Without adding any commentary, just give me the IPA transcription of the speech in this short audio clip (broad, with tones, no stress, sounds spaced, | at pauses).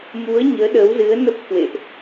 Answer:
m u˨˦ ə̯ ɲ əː˨˦ ɗ əː˨˦ w z ɨ˨˦ ə̯ n ə˦˥ p̚ k w ḛ˧˨ ʔ